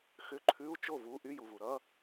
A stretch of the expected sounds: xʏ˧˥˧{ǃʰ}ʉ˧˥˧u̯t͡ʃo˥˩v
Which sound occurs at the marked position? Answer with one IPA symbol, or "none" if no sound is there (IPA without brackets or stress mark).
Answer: ǃʰ